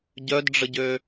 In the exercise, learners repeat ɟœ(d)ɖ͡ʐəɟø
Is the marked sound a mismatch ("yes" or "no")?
no